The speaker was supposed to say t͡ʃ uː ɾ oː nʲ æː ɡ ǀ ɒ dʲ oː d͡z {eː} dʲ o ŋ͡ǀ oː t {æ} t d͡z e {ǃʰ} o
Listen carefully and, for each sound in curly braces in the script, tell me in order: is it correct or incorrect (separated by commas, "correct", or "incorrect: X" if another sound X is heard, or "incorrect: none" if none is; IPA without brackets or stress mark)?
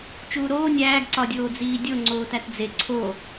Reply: incorrect: iː, correct, incorrect: ǀʰ